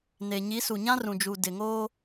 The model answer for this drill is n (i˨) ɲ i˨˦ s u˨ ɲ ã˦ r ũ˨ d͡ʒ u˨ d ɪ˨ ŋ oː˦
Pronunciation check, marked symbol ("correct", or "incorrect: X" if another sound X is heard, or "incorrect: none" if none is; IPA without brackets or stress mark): incorrect: e˨